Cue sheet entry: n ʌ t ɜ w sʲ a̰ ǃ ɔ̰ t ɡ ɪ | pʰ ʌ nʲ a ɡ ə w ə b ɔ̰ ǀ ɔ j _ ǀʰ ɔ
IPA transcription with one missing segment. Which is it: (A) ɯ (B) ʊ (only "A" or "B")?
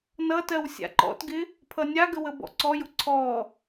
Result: B